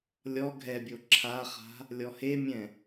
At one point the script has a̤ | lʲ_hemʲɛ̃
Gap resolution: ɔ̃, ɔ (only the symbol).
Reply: ɔ